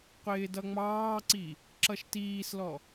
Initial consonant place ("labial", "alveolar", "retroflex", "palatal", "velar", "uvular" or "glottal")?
uvular